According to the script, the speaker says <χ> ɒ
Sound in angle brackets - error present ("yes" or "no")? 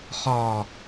no